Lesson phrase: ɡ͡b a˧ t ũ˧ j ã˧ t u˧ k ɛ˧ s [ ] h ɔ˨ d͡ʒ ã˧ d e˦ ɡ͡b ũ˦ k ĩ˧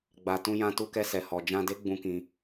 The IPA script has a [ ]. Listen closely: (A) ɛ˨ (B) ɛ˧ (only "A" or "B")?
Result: A